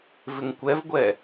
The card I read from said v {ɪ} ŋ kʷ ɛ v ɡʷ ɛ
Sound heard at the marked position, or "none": ɪ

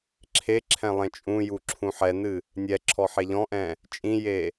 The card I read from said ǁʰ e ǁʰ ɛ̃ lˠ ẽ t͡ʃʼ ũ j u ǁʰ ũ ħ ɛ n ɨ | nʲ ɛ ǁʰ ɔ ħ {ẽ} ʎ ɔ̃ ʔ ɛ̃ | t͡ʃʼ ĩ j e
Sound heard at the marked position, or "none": e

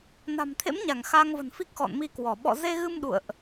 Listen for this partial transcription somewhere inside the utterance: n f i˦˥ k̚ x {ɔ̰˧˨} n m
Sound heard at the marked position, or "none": ɔ̰˧˨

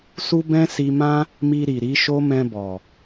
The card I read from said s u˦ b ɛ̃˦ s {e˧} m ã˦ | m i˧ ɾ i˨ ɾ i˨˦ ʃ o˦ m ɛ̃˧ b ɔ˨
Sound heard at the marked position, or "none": i˧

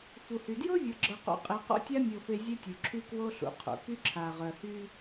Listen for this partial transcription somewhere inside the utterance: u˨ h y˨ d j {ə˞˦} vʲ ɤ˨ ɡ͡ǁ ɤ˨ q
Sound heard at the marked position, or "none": ɤ˦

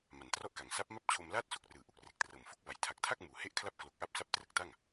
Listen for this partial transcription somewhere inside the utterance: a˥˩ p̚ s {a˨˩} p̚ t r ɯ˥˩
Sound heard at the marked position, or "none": a˦˥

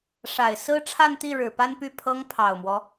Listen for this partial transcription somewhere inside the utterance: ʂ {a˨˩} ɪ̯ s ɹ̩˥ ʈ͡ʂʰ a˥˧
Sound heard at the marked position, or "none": a˨˩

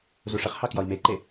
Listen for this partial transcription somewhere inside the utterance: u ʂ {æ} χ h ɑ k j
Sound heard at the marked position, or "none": ə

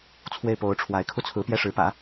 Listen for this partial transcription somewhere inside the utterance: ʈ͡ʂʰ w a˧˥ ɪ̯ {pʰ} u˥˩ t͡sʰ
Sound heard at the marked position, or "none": kʰ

